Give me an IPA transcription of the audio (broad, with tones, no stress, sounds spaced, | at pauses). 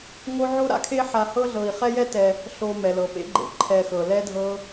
ŋ o˦ ʕ o˥ ɾ a̰˥ kʰ e˥ ħ a˨ h ɤ˥ ɮ ɤ˨ i̯ χ ɛ˥ j ɛ˥ t ɛ˨ | ɬ o˨ m ɛ˩ l ɤ˩ p ḛ˦ ɡ͡ǃ ḛ˩ ǃʰ ɛ˨ x ɤ˩ l ɛ˥ dʱ ɤ˦